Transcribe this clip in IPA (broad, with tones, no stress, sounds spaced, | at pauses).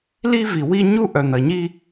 l i˦ v i˨ w i˦ ɲ u˦ ʔ œ˨ n̪ ɐ˨ ɲ i˦